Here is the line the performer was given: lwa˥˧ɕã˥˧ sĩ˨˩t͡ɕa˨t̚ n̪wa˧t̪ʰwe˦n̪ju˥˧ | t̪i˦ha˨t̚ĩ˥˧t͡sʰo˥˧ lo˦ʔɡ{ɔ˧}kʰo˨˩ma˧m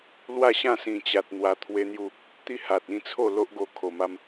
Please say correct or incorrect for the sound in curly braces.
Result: incorrect